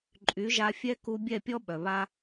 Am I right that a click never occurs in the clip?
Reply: no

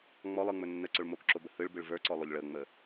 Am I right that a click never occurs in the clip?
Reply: no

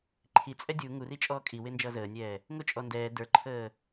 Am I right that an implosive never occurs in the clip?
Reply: yes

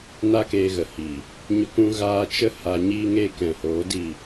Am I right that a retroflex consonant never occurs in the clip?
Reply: yes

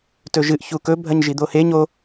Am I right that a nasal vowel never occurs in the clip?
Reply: yes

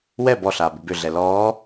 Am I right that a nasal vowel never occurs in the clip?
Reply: yes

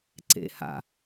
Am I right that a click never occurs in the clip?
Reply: no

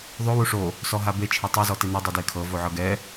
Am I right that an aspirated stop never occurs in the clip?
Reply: no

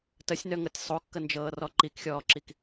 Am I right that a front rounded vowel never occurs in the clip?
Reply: no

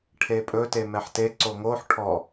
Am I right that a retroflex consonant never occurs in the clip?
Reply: no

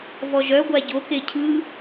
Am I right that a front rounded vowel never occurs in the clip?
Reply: no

